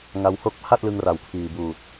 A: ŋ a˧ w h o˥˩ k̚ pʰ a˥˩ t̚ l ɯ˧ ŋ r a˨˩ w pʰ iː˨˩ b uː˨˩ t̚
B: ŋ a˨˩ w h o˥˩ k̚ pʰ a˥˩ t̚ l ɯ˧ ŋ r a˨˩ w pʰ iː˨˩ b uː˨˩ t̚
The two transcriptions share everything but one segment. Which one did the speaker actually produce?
A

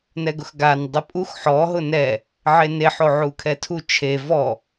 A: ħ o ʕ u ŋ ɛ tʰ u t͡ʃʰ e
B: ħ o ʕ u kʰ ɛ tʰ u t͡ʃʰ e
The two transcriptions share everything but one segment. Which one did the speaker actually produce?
B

